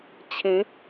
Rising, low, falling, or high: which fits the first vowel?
rising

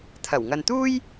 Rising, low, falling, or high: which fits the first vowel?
low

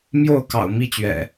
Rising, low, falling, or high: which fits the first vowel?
falling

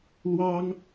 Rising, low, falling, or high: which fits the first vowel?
high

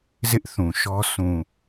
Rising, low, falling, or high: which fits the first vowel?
high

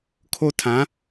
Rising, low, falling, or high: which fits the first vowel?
high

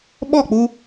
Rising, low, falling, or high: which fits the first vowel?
falling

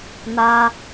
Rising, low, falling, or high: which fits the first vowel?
high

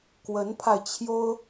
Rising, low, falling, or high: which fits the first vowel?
rising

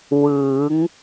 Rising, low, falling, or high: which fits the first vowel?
rising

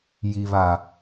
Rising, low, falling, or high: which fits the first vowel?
low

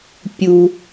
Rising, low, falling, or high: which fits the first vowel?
low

